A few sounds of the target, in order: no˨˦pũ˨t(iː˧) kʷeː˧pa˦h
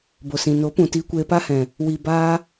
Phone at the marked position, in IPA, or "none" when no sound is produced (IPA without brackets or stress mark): iː˧